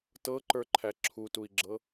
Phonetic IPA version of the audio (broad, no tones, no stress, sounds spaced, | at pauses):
t ɤ ǃ ə˞ ǃʰ æ ǁʰ u t u i̯ ɡ͡ǁ ɤ